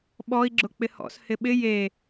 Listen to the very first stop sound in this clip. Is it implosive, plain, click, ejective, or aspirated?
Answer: implosive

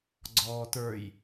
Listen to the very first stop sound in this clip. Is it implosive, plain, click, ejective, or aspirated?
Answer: click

